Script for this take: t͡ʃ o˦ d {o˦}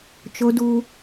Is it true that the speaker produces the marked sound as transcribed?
no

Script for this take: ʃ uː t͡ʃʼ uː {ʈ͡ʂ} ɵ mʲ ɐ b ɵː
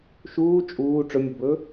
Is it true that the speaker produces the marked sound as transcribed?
yes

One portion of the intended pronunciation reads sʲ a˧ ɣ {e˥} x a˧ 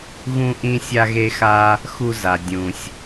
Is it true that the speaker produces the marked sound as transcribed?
no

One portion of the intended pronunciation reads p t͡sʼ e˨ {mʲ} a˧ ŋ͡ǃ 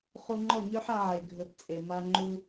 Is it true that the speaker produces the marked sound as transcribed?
no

